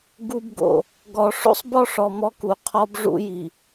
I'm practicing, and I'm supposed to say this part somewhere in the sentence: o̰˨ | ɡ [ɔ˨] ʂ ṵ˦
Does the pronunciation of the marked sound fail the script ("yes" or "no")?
no